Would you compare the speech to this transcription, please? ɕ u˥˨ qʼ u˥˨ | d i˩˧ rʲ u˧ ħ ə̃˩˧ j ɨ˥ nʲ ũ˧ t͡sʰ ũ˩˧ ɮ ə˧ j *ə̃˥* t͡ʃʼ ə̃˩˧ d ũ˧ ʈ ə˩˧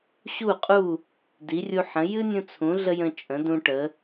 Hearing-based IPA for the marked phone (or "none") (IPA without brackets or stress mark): ə̃˧